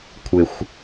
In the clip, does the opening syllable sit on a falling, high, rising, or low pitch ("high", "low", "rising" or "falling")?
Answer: low